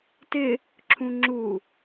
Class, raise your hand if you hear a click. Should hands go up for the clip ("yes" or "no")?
yes